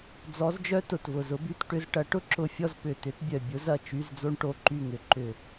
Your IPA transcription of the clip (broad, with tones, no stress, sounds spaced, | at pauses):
d͡z ɔ˧˥ z d͡ʒ œ˥ t ʊ˧˩ t v ʊ˧˩ z ʊ˧˥ b y˧˥˧ t ʈ ʏ˧˥˧ z ʈ ɐ˧˥ ʈ ʊ˥ ǁ ʊ˧˩ fʲ ɔ˥˨ z p ʏ˧˩ t ʏ˧˥ t bʲ œ˧˩ bʲ ʊ˧˥ z ɐ˥˨ t͡ʃ y˧˥˧ z d͡z o˥ ɳ ʈ o˧˥˧ ǃ y˧˩ ŋ ʏ˩˧ ǃ ʏ˧˩